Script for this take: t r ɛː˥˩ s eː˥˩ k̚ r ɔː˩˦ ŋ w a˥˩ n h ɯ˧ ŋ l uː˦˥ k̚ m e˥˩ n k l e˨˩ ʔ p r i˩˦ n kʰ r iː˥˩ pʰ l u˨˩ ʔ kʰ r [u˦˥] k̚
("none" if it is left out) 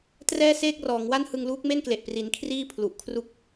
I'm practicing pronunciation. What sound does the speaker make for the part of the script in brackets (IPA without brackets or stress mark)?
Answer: u˦˥